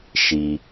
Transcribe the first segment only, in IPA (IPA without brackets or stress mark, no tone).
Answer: ʃ